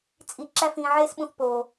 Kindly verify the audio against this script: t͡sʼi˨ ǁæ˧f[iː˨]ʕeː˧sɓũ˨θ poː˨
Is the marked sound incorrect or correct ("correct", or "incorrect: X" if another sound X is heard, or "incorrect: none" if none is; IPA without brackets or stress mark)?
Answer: incorrect: ĩː˨